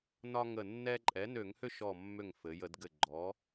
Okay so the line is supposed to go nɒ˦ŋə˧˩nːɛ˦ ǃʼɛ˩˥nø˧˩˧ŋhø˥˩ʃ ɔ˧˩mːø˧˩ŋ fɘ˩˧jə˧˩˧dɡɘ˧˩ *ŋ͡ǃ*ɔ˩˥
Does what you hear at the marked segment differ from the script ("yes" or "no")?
yes